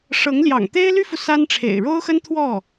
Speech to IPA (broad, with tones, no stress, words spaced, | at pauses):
ʂɤ˧˥ŋljɑ̰˨˩ŋ t̪e˥ɪ̯ly˥fu˨ sa˥nʈ͡ʂʰḛ˨˩ɪ̯ ɻo˥ʊ̯xə˥n t̪ʰwɔ˥˩